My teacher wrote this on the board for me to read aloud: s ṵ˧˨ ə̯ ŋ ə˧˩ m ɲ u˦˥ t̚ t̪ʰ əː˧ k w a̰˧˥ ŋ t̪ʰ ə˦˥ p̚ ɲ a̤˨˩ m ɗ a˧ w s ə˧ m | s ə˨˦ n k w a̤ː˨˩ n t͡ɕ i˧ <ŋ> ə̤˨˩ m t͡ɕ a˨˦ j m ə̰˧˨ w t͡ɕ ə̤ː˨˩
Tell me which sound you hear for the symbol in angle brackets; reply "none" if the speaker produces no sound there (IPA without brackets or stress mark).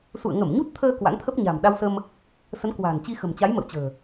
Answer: x